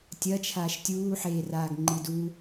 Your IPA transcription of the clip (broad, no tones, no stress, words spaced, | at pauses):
tʲɐ t͡ʃʰaːʃtʲuː ħeːraːɡŋ͡ǃidu